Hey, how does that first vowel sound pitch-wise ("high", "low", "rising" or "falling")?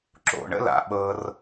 low